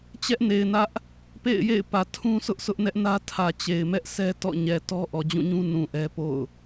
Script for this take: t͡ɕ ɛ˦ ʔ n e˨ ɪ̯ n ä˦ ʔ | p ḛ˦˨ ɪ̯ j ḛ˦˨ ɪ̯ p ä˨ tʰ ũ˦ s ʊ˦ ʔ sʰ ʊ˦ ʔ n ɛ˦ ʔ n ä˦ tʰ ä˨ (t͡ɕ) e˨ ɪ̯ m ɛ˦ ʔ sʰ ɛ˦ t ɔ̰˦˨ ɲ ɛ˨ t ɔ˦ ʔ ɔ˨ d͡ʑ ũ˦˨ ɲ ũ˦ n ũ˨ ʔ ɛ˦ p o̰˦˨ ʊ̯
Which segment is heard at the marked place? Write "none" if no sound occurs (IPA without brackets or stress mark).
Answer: t͡ɕ